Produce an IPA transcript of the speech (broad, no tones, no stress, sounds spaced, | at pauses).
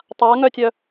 tˤ a ŋ œ tʲ œ